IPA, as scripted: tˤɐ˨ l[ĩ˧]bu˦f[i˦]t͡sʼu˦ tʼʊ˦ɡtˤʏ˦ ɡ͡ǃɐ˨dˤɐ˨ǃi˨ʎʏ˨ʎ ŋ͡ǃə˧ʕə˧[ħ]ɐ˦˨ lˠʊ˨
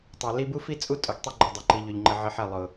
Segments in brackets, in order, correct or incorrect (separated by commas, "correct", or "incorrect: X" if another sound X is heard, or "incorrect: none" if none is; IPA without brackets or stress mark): incorrect: i˧, correct, correct